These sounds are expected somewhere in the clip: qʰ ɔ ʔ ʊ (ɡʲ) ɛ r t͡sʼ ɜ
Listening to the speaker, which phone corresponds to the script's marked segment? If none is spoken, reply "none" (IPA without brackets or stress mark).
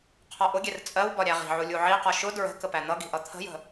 ɡʲ